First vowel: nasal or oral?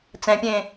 nasal